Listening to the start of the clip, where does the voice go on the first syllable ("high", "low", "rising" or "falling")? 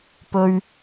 high